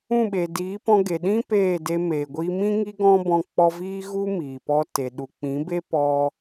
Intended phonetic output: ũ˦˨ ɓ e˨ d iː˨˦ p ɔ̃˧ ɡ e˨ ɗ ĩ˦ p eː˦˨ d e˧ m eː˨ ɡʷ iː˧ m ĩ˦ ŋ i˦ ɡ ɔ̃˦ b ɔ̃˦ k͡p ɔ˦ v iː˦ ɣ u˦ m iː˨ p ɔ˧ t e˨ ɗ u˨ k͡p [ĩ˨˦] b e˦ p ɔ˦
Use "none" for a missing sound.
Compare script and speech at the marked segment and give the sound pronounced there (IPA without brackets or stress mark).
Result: ĩ˨˦